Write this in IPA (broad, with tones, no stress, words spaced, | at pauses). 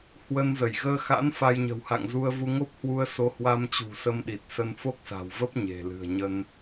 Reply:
hwə˧nzə˧˩j ɣəː˧xa̰˧˥n fa˧jɲə̤˨˩wha̰˧˨ŋ zu˧ə̯vu˧ ŋo˦˥p̚hwu˧ə̯ so˨˦hwa˧mt͡ɕṳ˨˩ sə˧mɗi˨˩t̚ sə˧nfo˦˥k̚sa̤˨˩wvə˦˥p̚ ɲe̤˨˩lɨ̤˨˩ə̯ɲə˧n